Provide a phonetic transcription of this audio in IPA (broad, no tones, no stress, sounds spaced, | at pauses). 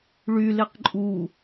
ɭ y l e q ǃʼ u